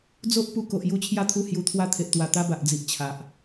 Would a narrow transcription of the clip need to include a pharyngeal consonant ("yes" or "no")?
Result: no